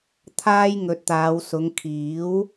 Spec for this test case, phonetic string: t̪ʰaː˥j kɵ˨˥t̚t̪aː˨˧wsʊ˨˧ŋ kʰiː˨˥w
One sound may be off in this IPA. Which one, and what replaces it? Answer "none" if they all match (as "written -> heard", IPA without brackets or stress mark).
k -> ŋ